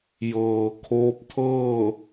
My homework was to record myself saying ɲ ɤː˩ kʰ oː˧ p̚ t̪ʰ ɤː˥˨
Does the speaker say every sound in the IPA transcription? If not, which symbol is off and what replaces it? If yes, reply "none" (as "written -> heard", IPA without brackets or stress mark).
ɲ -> j